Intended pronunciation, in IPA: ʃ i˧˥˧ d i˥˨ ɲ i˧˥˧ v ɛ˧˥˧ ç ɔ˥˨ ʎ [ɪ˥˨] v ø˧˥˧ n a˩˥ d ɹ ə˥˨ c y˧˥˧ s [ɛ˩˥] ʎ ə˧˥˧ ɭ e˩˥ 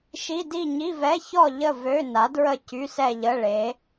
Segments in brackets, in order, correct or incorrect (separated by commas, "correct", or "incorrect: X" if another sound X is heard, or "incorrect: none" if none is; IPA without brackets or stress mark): incorrect: ə˥˨, incorrect: ɛ˥˨